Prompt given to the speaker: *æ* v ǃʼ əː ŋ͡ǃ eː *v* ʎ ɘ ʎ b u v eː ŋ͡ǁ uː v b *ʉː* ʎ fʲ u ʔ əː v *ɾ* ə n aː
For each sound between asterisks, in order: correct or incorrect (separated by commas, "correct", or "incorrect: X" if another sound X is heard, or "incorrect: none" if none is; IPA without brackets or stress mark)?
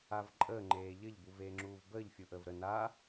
incorrect: a, incorrect: none, incorrect: əː, correct